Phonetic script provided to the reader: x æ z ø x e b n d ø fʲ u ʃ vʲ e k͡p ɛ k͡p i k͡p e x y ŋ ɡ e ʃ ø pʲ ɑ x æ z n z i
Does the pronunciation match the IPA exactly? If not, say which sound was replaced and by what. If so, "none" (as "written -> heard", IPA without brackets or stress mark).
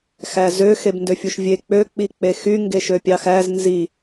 ɛ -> ø